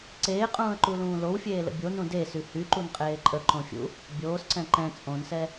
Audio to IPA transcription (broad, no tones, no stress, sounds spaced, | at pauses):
ǀ eː qʼ ũː ə̯ ǃ u l ũː l o w fʲ eː l ə̰ bʲ o n ũ d e s y h y ǃ u n qʼ eː ǃʼ ə ǃ õ fʲ ṵ | bʲ oː s ǀ ɛ̃ ǃ ɛ̃ t͡sʼ õ n s ɛ